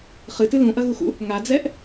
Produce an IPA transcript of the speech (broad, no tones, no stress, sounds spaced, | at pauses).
χ ɨ t ɨ l ũ ʔ ɐ ɣ u x ṵ | ŋ a d͡z ɛ ʔ